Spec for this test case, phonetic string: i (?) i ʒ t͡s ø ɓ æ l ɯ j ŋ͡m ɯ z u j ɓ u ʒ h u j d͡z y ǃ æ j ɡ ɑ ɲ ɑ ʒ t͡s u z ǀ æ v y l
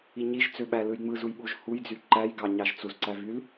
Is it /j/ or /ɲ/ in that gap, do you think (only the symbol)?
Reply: ɲ